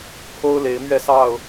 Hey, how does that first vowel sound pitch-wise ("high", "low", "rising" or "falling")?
high